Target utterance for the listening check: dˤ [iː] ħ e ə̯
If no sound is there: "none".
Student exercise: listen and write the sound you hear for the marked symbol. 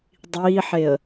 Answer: iː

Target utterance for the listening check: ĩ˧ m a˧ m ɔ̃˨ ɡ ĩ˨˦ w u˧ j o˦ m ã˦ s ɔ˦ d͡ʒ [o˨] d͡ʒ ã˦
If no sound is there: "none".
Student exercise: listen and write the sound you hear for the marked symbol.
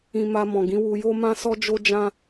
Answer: o˦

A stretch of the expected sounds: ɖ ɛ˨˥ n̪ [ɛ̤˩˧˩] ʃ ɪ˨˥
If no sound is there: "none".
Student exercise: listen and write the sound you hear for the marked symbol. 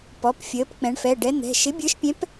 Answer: ɛ̤˩˧˩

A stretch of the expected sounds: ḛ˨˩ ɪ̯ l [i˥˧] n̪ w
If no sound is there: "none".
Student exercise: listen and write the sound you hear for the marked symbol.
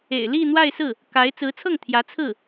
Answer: i˥˧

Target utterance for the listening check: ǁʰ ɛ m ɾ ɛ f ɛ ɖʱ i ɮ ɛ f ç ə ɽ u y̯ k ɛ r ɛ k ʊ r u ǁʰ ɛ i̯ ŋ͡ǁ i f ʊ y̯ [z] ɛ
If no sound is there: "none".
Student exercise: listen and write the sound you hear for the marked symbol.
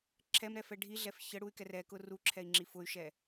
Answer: ʃ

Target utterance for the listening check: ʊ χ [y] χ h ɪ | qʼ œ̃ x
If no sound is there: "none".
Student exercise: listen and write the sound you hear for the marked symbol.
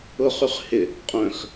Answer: y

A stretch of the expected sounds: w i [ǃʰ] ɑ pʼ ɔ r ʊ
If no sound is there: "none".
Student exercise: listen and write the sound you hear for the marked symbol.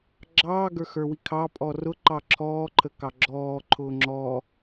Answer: kʰ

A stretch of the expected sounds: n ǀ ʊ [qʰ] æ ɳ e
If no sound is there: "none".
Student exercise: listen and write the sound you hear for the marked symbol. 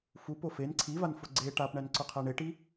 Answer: qʰ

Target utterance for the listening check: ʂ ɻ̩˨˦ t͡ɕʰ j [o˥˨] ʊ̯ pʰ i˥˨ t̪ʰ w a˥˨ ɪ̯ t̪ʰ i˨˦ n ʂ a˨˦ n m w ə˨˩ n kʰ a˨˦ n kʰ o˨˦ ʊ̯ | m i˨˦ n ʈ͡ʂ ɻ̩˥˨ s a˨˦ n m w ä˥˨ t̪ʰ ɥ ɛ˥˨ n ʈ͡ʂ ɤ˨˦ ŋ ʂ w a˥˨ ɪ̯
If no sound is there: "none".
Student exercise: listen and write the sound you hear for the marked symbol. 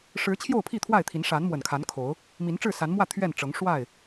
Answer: o˥˨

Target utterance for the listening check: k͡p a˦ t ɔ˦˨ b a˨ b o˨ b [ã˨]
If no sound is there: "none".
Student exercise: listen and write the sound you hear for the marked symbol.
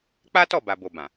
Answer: ã˨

